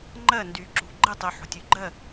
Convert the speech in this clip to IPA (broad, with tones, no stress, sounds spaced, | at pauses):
ŋ͡ǃ ɜ˦˨ n d y˨ ǁ ṳ˨ ɡ͡ǃ ɪ˦˨ tˤ y˨ ħ o̤˨ tʲ ʉ˨ ɡ͡ǃ ɜ˦˨